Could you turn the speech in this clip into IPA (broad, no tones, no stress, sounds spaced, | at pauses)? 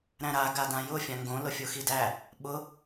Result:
ɾ æ̃ ɾ a ɡ a d ã j ʊ fʲ ã ŋ ɡ õ l ʊ fʲ o x i d æ | ɓ ʊ